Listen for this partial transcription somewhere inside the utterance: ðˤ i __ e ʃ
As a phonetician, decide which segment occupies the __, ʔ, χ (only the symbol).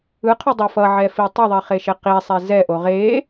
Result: χ